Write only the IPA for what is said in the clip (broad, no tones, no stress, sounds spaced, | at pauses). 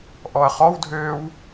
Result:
ʔ ɔ ɐ̯ χ ɔ w dʱ øː w